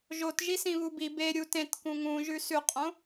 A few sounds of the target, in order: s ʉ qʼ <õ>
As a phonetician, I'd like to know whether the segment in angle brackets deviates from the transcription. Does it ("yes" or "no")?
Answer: no